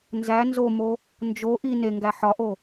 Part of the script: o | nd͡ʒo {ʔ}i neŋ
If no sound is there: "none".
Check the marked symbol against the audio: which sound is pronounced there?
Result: ʔ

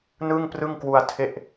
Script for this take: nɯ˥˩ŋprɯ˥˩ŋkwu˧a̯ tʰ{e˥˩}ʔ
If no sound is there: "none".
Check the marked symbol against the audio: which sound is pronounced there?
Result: e˥˩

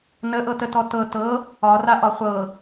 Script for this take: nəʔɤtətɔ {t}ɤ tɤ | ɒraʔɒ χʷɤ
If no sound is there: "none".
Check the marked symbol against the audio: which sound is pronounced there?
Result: t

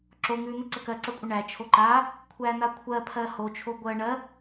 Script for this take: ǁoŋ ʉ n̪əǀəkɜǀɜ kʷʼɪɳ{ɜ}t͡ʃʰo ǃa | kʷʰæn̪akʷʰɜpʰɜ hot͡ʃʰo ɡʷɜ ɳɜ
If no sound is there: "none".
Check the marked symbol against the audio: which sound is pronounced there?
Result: æ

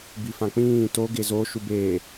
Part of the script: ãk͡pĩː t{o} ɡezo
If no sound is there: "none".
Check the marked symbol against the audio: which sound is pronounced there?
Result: o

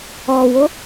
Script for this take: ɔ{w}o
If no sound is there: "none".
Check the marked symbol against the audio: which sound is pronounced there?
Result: w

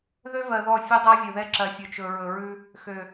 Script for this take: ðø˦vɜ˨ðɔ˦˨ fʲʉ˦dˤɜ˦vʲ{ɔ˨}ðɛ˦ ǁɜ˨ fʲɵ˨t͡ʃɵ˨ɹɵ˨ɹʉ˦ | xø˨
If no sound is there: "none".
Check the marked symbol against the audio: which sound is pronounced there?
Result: ɵ˨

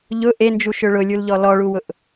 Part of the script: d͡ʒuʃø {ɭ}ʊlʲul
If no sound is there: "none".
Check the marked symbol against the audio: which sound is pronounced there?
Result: ɭ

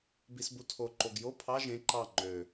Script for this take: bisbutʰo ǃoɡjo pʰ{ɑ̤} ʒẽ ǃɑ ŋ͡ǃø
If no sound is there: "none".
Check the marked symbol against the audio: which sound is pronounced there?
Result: ɑ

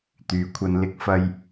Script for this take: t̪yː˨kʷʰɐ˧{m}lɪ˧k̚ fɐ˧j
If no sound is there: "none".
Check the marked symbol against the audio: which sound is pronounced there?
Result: n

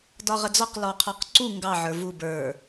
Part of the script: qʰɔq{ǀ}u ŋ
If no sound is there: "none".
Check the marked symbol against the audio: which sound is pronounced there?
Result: ǀ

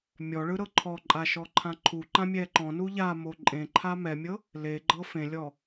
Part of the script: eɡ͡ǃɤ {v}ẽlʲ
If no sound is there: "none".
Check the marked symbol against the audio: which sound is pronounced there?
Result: f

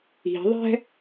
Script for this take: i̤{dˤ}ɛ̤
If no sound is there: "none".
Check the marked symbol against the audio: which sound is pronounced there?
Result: ðˤ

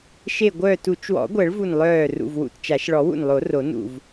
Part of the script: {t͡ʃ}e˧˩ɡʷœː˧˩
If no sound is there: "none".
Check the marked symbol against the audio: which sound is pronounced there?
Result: ʃ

